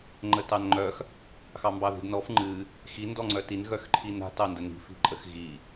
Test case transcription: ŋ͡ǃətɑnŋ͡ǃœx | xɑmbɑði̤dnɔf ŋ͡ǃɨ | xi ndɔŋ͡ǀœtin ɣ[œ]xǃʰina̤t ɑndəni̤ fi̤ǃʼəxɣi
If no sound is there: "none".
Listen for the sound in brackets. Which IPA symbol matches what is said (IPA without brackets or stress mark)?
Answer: œ